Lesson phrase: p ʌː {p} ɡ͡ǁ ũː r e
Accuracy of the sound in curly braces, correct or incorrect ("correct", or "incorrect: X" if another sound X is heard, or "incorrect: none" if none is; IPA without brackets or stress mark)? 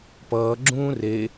incorrect: none